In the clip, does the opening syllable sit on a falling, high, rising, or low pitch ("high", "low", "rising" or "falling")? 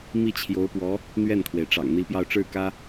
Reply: falling